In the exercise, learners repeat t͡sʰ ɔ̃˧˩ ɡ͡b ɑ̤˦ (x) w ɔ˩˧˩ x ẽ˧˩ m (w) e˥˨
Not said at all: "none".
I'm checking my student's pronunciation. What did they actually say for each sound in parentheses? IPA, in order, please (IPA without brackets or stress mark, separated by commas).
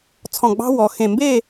none, b